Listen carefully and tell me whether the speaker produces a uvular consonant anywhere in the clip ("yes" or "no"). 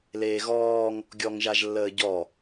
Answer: no